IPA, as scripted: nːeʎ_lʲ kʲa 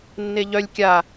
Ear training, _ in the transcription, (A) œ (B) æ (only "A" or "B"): A